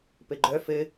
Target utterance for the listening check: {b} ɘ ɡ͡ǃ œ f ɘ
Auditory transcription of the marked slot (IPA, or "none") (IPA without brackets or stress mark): p